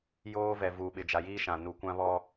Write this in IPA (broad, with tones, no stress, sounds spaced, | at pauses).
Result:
j oː˦ v ɛ˨ v uː˨ ɓ ɪ˨ d͡ʒ a˨ j iː˦ ʃ ã˨ n u˨ kʷ ã˦ β ɔ˦